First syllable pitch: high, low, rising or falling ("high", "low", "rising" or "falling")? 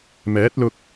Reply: rising